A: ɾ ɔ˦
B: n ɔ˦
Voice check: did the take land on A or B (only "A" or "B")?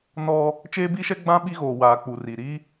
B